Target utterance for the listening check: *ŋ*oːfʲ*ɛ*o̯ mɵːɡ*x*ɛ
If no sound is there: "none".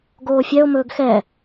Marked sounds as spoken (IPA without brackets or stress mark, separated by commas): ɡ, ɛ, x